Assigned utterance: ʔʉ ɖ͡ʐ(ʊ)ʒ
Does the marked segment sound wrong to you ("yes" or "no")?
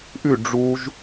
yes